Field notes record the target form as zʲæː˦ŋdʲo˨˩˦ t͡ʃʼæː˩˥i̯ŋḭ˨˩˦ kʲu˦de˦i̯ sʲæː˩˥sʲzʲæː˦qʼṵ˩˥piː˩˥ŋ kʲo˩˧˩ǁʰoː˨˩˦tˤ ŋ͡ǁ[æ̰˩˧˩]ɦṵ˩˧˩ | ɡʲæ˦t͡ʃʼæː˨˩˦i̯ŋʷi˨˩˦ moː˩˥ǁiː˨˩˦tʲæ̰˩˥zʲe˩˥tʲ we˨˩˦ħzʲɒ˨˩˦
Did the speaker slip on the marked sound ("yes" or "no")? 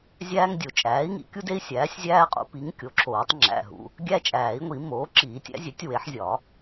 no